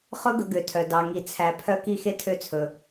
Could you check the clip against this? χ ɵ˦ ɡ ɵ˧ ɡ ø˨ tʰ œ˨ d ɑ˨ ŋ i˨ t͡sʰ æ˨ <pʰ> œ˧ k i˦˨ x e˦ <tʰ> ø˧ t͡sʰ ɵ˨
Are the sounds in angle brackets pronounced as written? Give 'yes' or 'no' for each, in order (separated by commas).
yes, yes